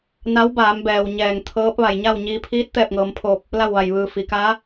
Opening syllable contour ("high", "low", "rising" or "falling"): rising